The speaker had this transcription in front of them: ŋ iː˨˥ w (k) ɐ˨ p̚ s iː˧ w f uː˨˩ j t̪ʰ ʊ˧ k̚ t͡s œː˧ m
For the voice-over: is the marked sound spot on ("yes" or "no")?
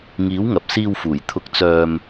no